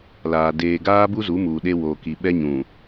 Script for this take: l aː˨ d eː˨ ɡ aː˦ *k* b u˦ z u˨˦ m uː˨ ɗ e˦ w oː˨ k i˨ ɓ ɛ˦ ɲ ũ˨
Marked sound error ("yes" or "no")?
yes